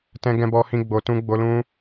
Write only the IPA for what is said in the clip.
t ɛ̃˧ ɡ ɛ̃˧ b ɔ˧ h ĩ˧ ɡ͡b o˨ t ũ˧ ɡ͡b o˧ l ũ˧

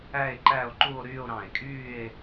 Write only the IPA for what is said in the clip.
æ˥˧ e̯ ǃ æ˥˧ o̯ ǃ u˥˧ o̯ ɾ yː˥˧ o̯ ɾ ɑ̃˧˩ e̯ kʼ yː˥˧ e̯

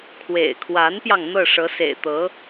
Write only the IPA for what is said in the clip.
kʰ w ḛ˨˩ ɪ̯ kʰ w a˧˥ n p j ɑ˧ ŋ n̪ ɤ˥˩ ʂ ɤ˧˥ s ḛ˨˩ ɪ̯ t̪ ɤ˧˥

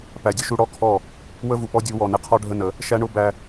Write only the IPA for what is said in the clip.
p æ˨ dʲ ə˦ ʃ u˦ ɽ ɔ˦ kʰ ɔ˦˨ | w ə˦ v u˨ p ɔ˦ dʲ u˨˦ w ɔ˨ n ɪ˦ qʰ ɔ˦ ɖʱ ə˦ n ə˨˦ | ʃ æ˦ ɳ ʊ˦ b æ˦

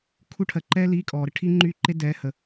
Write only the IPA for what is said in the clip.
kʰ u˥˧ ʈʰ ɜ˨ ǃ ɛː˥ l i˧˥˧ kʼ ɔː˨ ɾ ə˥ ʈʰ iː˥ ŋ͡ǃ yː˥ ǃ e˥ d ɛː˧˥˧ h ə˨

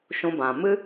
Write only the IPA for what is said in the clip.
ʃ ũ˧ b ã˨ m ɨ˦

